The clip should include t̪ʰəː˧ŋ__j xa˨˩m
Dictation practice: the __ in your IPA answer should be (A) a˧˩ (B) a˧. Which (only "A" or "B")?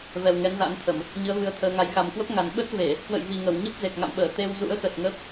B